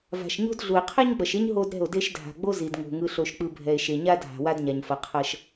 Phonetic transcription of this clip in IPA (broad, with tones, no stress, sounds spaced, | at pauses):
v a̤˨ ʃ ɲ o̤˦ d ɮ u˨ e̯ qʰ ɛ˦ ɲ ɡ͡b ʌ˨ ʃ e˦ ɲ ɦ o˦ d ɾ ɛ̤˦˨ o̯ d e˦ ʃ dʱ a̤˨ ɡ͡b o˦ z i˨ d ŋ o̤˨ ŋ ɯ˨ ɬ o˨ ʃ k͡p ɯ˨ bʱ ɛ˨ e̯ ʃ e˨ ɲ a˦ dʱ a̤˨ w a˦ d ɲ a˨ ɲ f ʌ˨ qʰ ʌ˦ ʃ